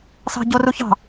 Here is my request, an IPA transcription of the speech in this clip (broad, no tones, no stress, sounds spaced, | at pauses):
s ɑ̤ ɟ o r u ç ɑ̤